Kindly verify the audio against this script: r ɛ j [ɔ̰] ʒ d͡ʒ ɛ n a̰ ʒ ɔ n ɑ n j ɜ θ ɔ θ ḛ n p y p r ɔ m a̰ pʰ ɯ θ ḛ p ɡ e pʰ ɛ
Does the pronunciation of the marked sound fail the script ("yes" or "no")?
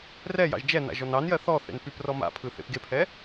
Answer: yes